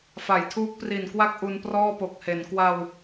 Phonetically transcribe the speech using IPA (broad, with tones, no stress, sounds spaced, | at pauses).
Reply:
f a˩˦ j tʰ uː˦˥ k̚ p r i˨˩ n k w a˥˩ k̚ ʔ u˧ n p r ɔː˥˩ p o˨˩ k̚ h e˩˦ n k w a˧ w